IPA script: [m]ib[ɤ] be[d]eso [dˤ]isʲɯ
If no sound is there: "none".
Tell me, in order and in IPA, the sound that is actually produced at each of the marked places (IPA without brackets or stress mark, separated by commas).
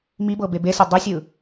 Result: m, ɤ, b, dˤ